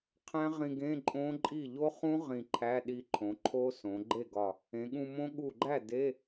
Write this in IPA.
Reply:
qʰ æ̃˦˥ ʁ ĩ˧ ɡ ẽ˧˥˧ ǃʼ õ˦˥ ǃʼ i˥˩ ʎ o˦˥ χ ũ˦˥ ʁ ĩ˧˩ ǃʰ æ˧˥˧ ɗ i˧ ǃʰ õ˩˧ ǃʰ o˦˥ s õ˩˧ ɡ͡ǃ e˥˩ ɡ ɒ˧˩ | ẽ˩˧ ɠ ũ˧ m õ˦˥ ɠ u˧˩ ɡ͡ǃ æ˥˩ d e˧˥˧

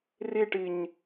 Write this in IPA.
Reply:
r i ʈ i ɲ

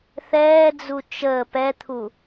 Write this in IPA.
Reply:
θ ɛː d͡z u t͡ʃ əː p ɛ t̪ʰ u

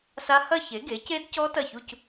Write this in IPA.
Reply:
s a˦˥ h ɐ˥˧ ç e˩˥ ɡ e˩˥ c e˦˥ d c ɔ˦˥ t ɐ˥˩ ç u˥˧ c

